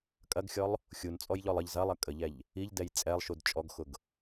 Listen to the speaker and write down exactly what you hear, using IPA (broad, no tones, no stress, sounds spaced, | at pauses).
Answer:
kʼ ɐ ɡ xʲ ɔ lˠ | xʲ u n t͡sʼ ɔ j ʎ ɔ lˠ ə ʎ z ɐ lˠ ɐ kʼ ə ʎ ɛ ʎ | i ʎ d ɛ j t͡sʼ ɛ lˠ ʃ u d t͡ʃʼ ɔ ɡ x ʊ ɡ